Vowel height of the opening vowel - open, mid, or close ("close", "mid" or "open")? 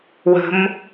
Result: mid